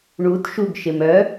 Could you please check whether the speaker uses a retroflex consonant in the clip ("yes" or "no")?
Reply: yes